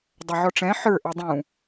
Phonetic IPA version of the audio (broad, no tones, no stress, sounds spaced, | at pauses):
dˤ œ ʕ ɔ ʈ͡ʂ ɛ̃ ħ ə˞ ʔ ɛ dˤ ũ